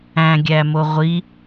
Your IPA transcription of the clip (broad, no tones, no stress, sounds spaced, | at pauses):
æ̃ ɡʲ æ m o ʁʷ i